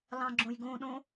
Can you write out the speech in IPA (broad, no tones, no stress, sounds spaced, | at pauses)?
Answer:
l ɑ̃ ɡ͡ǁ õ j ɡ õ ɗ õ